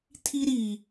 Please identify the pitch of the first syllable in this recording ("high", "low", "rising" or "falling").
high